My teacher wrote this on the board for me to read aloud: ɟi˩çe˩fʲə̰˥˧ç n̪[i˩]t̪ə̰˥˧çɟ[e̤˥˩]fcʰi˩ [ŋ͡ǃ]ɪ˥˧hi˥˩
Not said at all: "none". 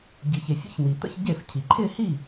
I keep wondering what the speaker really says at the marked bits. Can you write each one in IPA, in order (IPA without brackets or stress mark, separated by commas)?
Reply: i˩, e˥˩, ǃʰ